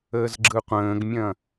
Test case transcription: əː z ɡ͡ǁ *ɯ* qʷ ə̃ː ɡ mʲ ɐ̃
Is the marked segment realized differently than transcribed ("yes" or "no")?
no